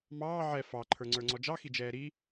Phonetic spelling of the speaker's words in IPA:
m ɑː ʕ ɛ f ɑ ǃʰ ə˞ ŋ͡ǀ ə˞ ŋ͡ǀ ɔ d͡ʒ ɑ x i d͡ʒ ɛː ɾ i

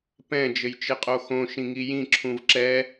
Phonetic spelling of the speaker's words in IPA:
p ɛ̃ d͡ʒ ɘ j t͡ʃ ɘ qʼ o x õ ʃ ĩ ŋ i j ĩ ǁʰ ũ v ǁ ɛ

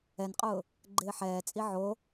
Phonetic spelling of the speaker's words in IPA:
ɛ n qʼ ʊː | ɡ͡ǃ ɪː ħ ɛː t͡sʼ i ʕ o

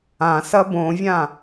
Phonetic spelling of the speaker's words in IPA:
ã s ɐ b õ vʲ ã

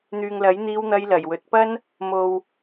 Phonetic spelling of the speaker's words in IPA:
n̪ yː˨ ŋ l ɐ˨˥ j n̪ iː˧ w n̪ ɐ˧ j l ɐ˨˩ j w ɵ˨ t̚ p ɐ˥ n | m o˨ w

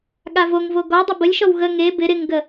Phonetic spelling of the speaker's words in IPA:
ɠ a v o ŋ v o ɡ ɔ dˤ ɪ b ə lʲ ʃ ɔ w ɣ ə ŋ e b ɪ ɾ ɪ ŋ ɡ ə

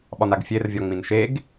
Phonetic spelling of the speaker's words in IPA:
ɓ ɒ n a ɡ fʲ e r vʲ ɒ ŋ͡m ĩ n ʃ e ɡ

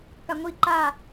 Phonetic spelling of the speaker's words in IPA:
k a ŋʷ i ǃ a

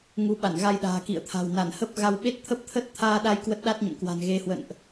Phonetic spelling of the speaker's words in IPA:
ŋ u˨˦ ɓ a˧˩ n ɣ a˧ j ɗ a̤ː˨˩ k ḭ˧˨ ə̯ t̪ʰ a̤˨˩ w n a˧˩ n h ə˦˥ p̚ ɣ a˧ w ɓ e˦˥ t̚ t̪ʰ ə˦˥ p̚ t̪ʰ ə˦˥ t̚ t̪ʰ aː˧ ɗ a˧ j k w ə˦˥ t̚ ɗ a˦˥ t̚ ɲ ə̰˧˨ m k w a̤˨˩ n ɣ e˨˦ h w ə̰˧˨ n ʔ

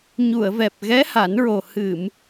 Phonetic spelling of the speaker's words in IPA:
ɲ u˨˩˨ ə̯ v ɛ˨˩ p̚ ɣ ɛ˧˥ h a˨˩˦ n ɹ o˨˩ h ɨ˨˩˨ m

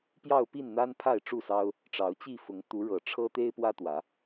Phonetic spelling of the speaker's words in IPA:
p j ɑ˥˨ ʊ̯ p i˥˨ n n̪ a˦ n pʰ a˥˨ ɪ̯ ʈ͡ʂ u˥˨ s ɑ˦ ʊ̯ | ʈ͡ʂ ɑ˨˦ ʊ̯ t͡ɕ i˥˨ f ʊ˨˦ ŋ t̪ u˨˦ ɻ ɤ˨˩ ʈ͡ʂʰ ɤ˦ t̪ e˦ ɪ̯ p w ä˦ t̪ w ä˨˦

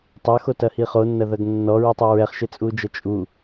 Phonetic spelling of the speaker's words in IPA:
tˤ ɐ x o t ɐ h i χ o nː ɐ ð ɐ ɡ nː ɔ ɹ u tˤ ɘ ɹ ɛ χ ʃ ɘ t͡sʼ u d͡ʒ ɐ t͡ʃʼ u

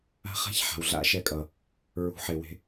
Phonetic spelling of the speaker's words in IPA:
a̤˦ χ a̤˦ ç ħ a̤˨ w ɮ a̰˦ ʃ ɛ˧ kʼ ʌ˨ | ɹ ṳ˨˦ ħ e˨ w e̤˧

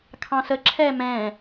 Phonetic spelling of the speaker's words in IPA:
kʰ ɑ̃ s ə ǁʰ ɛ m ɛ̃

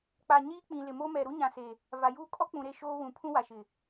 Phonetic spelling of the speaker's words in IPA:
k͡p a˨ ɲ iː˦ k͡p ĩ˨ l ɪ˨ m o˦ m ɛ˨ ɾ u˦ ɲ ã˨ s e˨ | v a˨ j uː˦ kʼ ɔ˦ k͡p ũ˨ ɾ e˦˨ ʃ oː˦ w ũ˨ pʰ ũ˦ w a˨ ʃ ɪ˨

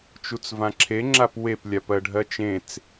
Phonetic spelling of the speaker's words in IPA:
t͡ʃ u t͡s v ã ǁʰ e ŋ͡ǁ a p w e p lʲ a p ɜ ɖʱ ɜ t͡ʃ ẽ t͡s

